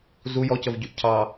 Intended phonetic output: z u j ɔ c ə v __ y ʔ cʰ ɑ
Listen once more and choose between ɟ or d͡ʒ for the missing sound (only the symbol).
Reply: ɟ